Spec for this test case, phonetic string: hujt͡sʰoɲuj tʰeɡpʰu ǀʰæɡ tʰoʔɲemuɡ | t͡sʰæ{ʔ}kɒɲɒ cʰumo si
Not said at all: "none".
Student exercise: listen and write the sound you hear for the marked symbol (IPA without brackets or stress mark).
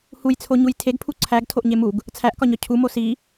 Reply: ʔ